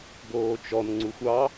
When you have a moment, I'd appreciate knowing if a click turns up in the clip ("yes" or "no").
yes